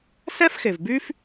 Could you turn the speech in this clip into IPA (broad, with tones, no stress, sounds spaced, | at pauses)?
s ɛ˥ f x e˩ v b y˥ f